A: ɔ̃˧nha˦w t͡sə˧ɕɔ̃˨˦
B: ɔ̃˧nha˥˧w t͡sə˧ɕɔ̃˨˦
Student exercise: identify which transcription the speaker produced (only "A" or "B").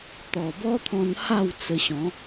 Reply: B